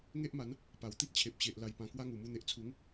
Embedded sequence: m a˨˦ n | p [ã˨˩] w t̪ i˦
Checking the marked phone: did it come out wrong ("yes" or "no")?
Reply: yes